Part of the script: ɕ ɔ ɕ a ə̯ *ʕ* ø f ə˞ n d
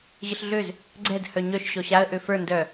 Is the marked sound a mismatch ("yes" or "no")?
yes